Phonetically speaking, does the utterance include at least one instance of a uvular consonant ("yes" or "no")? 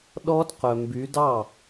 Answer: yes